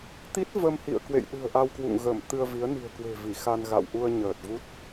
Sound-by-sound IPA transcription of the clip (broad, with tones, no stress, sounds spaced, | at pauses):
t̪ i˦˥ t̚ v ə˧ m h ḭ˧˨ ə̯ k w ḛ˧˨ j ɗ ɨ̤˨˩ ə̯ ʔ a˧ w k w ṵ˧˨ ŋ ɣ ə˧˩ m t̪ ɨ˧ ə̯ v i˨˦ ə̯ n i̤˨˩ ə̯ k w e̤˨˩ v i˧˩ x a˧ n ɣ a̰˧˨ w ʔ u˧ ə̯ ɲ əː˨˩ t̚ v u˦˥ t̚